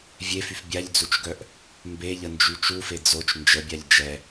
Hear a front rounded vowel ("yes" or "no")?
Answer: yes